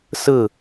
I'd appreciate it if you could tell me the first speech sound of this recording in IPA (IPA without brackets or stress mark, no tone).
s